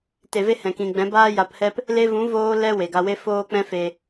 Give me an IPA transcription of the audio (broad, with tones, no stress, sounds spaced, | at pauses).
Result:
t e˨ v e˧ h ɛ̃˨ k ĩ˨ ɡ͡b ɛ̃˨˦ b aː˦ j a˧ p h ɛ˦ p | l e˧ v ũ˨˦ v oː˦ l ɛ˦ w e˨ ɡ a˧ w e˦ f oː˦ k͡p ɛ̃˦ f e˧